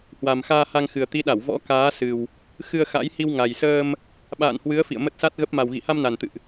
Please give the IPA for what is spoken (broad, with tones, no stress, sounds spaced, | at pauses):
h w a˨˩ m x aː˧ h a˧ ŋ x ɨ˨˩ ə̯ t̪ i˨˦ ɗ a˧˩ w v ɔ̰˧˥ k aː˨˦ s ɨ˨˩ w | x ɨ˧ ə̯ x a̰˧˥ j h i˧ w ŋ a˨˩ j s əː˧ m | ɓ a̰ː˧˨ n h w ɨ˨˦ ə̯ f ḭ˧˨ ə̯ m ə˦˥ t̚ s a˦˥ t̚ ɣ ə˦˥ p̚ m a˨˩ w ɣ ḭ˧˨ h a˧ m n a˨˩ n t̪ ɨ̰˧˨ ʔ